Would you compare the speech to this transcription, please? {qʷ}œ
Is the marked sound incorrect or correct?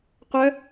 correct